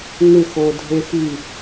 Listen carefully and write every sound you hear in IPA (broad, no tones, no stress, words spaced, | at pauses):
ŋɪxo dʱexi